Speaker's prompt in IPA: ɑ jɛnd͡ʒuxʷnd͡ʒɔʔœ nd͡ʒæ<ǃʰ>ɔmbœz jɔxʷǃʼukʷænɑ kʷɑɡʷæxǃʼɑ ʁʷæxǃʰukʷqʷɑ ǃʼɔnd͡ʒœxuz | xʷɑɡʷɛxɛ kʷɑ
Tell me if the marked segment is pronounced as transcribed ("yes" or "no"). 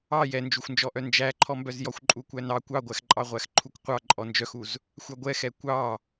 yes